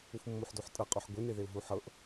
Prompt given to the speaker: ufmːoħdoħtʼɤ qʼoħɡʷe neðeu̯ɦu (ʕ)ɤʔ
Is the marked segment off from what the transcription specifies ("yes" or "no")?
yes